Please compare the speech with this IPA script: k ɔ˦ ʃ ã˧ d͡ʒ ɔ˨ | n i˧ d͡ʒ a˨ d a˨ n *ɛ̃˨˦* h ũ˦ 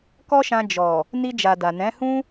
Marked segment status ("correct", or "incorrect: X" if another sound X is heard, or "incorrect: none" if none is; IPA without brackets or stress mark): correct